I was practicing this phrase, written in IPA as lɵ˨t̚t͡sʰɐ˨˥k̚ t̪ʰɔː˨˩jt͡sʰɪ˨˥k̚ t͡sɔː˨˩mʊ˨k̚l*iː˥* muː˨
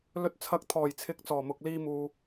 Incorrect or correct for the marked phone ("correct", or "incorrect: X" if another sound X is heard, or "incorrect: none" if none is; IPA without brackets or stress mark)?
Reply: incorrect: iː˧